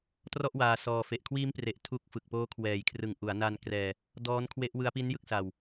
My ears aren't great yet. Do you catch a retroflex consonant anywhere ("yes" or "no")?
no